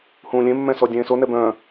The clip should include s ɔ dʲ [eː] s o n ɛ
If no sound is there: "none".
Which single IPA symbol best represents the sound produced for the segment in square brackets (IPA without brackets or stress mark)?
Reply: ẽː